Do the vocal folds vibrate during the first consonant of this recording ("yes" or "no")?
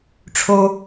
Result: no